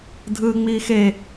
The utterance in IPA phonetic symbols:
dʱɯːŋ͡miːxe

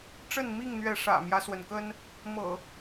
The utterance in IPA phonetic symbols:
ʈ͡ʂə˥˨nmi˥˨ŋn̪ɥɛ˨˦ ʂä̰˨˩mjä˦swə˩nkə˦n | mɤ̰˨˩

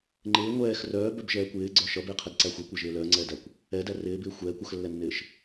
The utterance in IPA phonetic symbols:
ŋ͡ǃɪː ŋʷɛːx rœːbœbʒɛː kʷɪːɡ͡ǀœ ʃʌbɪːqʰɛdǀæ xʷɛkʷɛʒɪː lœːŋ͡ǀɛːdækʷ | ɛdæ rɪːbɪː xʷɛːkʷ ʌxlːɛnːɪːʃ

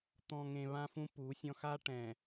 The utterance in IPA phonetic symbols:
t̪ɔ̃˨ ŋẽ˨βã˦fũ˦ pu˨˦sʲɔ̃˦ xa˦ʈɛ̃˨

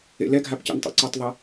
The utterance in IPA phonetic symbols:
ḛlɛɡʱap cḛntˤɛ̰ǀɵtˤðˤe

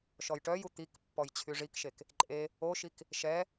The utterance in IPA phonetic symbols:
ʃɔjʈœju t̪ikpːɔj t͡ɕʰyʐikʃek | ǃʼe | oʃik | ʃɛ

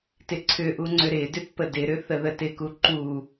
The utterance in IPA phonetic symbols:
tɪǀʰʏʔuŋ͡ǀʏ ɾɪdʏt pədɪɾʏ θəðətɪku ǃu

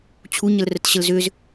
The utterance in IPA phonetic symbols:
t͡ɕʰuɲəlrət ɕəlzʏz

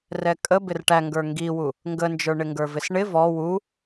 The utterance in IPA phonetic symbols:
rɛkʼə bɪrʈæ ŋɡə˞ŋɡiwu | ŋɡənd͡ʒə˞ɳɪŋɡə˞ vɪsɳɪ vɔ wu

